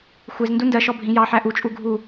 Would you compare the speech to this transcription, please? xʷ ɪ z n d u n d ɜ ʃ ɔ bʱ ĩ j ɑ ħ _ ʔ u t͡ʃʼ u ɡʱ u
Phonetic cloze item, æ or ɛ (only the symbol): æ